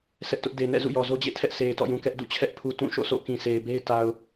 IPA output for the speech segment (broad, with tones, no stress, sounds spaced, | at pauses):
s ɛ˦ ʔ t ʊ˦ ʔ d e˨ n ɛ̰˦˨ z ṵ˦˨ j ɔ˨ z o˦ d͡ʑ ḛ˦˨ tʰ ɛ˦ ʔ sʰ e˨ ɪ̯ t ɔ̰˦˨ j ũ˨ k ɛ˦ ʔ d ṵ˦˨ t͡ɕʰ ɛ˦ ʔ pʰ u˨ t ũ˦˨ ʃ o̰˦˨ s o̰˦˨ k ĩ˨ sʰ e˨ ɪ̯ b e˦ ɪ̯ t a˨ ʊ̯